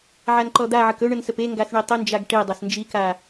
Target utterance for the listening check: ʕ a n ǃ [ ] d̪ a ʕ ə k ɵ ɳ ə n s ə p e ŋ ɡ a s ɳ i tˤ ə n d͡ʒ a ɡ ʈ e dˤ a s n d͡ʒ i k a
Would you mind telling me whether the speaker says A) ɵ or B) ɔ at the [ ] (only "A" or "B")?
B